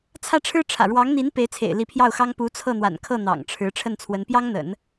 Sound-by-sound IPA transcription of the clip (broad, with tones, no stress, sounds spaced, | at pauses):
t͡sʰ ä˥˩ ʈ͡ʂʰ ɻ̩˥ ʈ͡ʂʰ ä̰˨˩ ɻ w ɑ˧˥ ŋ n̪ i˧˥ n p e˧˥ ɪ̯ t͡sʰ ḛ˨˩ ɪ̯ l i˧˥ pʰ j ɑ˥˩ ʊ̯ x ɑ˥ ŋ p u˧˥ t͡sʰ ɤ˥˩ n̪ w a̰˨˩ n kʰ ɤ˥˩ n̪ ɑ̰˨˩ ŋ ʈ͡ʂʰ ɻ̩˧˥ ʈ͡ʂʰ ə˥˩ n t͡sʰ w ə˧˥ n p j ɑ˥ ŋ n̪ ə̰˨˩˦ n